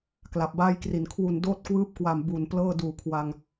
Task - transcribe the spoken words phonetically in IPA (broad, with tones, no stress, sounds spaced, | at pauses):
k l a˨˩ p̚ b aː˥˩ j k r i˨˩ n kʰ w u˨˩ n d oː˦˥ t̚ k w ɯː˦˥ p̚ k w a˨˩ m b u˨˩ n p l ɤː˥˩ d uː˨˩ kʰ w a˧ ŋ